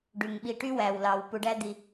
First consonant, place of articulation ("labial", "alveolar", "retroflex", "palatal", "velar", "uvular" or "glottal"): retroflex